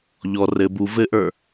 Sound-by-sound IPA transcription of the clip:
ʎɔ rɘ bu vɘʔə˞

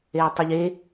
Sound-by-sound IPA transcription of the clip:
eə̯tˤiʎe

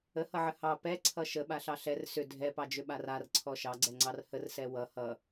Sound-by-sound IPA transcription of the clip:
əhʌʕə hɑ pɛǀʰʌ ʃəɓaɬɑ ɬɛr sʏ dʱɛpɑd͡ʒʏɓar arǀʰɔ ʃɑɡ͡ǀɛŋ͡ǀɑr hərsɛ wʌ hʌ

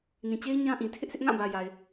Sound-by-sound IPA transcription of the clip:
nĩ˨t͡ɕe˦ɪ̯ ɲã˦ʔĩ˨ tʰɪ˦ʔsʰɪ˦ʔŋã˦˨bä˨ ja˨ɪ̯

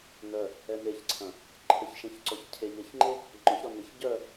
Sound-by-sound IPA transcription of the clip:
nœ | ɛneçǀʰɐ̃ | ǃʰəçʃɛ̃ç ǀɔçcʰeʎɐçŋ͡ǃe | ŋ͡ǃɔçɾɔ nɪç ɟœ

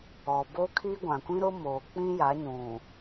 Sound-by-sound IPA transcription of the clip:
ɔ˨bo˦kʰi˦ ɡʷã˨kʷĩ˦ɾʊ˦moː˨ k͡pĩ˦ja˨˦ɲũ˨

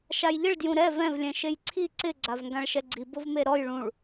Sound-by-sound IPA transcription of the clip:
ʃajʎɪɭ djũɾɛ vɛ̃v lʲɛ̃ʃejǀʰi ǀɪ ɡ͡ǀavŋɡãɭʃɛɡ͡ǀi bʊvmeɾɔj ɭũɭ

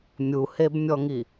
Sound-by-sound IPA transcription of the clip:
mʲuhebmʲɔŋi

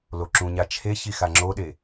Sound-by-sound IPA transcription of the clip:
loǁũɲa t͡ʃʰeçi xaŋ͡ǁoɗe

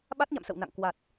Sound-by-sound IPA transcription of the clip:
ɓa˦˥t̚ɲa̰˧˨m sə̰˧˨wna̰˧˨ŋkwa˨˩t̚

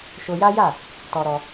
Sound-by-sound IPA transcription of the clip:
ʃo˧ja˦ja˦˨ | tɔ˧ɾɔ˧

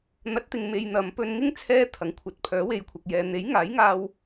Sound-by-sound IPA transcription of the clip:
n̪ɐ˨˥t̚t̪ɪ˨ŋ me˧jn̪ɐ˨˧m pɵ˧nŋɪ˥ŋ t͡sʰɛː˧ t̪ʰɐ˨˥ŋkʷʰɐ˨˥t̚ pʰœː˨˥we˨jkʷʰɐ˨k̚jɛː˨˧ n̪e˨˥jŋaː˨˥jŋaː˧w

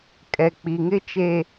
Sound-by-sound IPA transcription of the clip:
kʼɛ˨k͡pi˨ŋɪ˦t͡ʃe˦

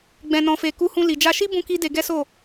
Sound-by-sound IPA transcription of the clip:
ɡ͡bɛ̃˧nɔ̃˧fe˧ ku˧hũ˧ li˨d͡ʒa˧ʃi˦ bũ˦ki˦de˧ ɡɛ˦so˦˨

